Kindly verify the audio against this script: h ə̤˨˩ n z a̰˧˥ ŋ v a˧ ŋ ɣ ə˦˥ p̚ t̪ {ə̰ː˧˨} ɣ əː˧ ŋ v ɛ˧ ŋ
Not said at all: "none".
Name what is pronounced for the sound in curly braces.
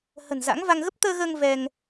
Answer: əː˧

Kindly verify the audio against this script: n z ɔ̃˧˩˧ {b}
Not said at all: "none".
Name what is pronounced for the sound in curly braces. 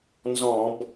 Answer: b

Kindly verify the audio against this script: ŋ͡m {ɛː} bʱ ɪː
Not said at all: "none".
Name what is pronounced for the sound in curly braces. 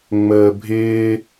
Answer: əː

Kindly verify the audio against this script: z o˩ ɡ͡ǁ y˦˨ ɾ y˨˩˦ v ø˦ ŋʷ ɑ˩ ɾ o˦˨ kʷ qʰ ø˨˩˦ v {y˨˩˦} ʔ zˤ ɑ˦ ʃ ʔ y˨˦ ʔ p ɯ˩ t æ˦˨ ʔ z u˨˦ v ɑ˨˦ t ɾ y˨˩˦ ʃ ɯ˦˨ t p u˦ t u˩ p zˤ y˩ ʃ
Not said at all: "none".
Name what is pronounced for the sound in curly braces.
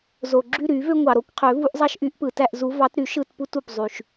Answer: u˨˩˦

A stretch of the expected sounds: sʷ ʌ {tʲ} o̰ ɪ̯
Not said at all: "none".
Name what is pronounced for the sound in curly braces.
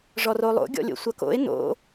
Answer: k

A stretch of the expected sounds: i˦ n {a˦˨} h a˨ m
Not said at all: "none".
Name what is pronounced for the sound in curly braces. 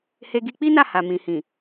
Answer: a˦˨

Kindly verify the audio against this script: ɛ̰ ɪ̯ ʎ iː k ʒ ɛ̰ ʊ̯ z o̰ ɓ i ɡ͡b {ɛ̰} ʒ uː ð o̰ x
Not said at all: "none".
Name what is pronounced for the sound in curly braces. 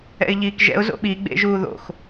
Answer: ḛ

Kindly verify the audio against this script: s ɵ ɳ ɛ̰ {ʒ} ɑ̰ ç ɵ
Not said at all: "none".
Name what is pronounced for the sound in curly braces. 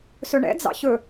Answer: d͡z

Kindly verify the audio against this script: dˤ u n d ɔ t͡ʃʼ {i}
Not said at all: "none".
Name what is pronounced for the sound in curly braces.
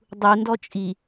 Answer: i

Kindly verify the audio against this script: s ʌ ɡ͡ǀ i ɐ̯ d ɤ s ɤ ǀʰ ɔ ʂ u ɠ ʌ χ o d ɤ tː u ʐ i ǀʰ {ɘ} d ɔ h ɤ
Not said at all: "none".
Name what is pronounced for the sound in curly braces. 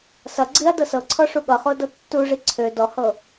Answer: ø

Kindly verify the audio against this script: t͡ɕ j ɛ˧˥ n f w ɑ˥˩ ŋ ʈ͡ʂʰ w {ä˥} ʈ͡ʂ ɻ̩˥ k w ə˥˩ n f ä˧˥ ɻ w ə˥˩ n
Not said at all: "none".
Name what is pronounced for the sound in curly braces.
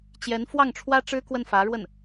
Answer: ä˥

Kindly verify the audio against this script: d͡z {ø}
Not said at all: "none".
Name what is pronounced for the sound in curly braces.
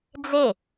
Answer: e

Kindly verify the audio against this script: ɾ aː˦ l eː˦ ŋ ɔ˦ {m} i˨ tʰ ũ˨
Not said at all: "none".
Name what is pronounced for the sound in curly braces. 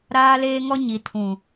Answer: ɲ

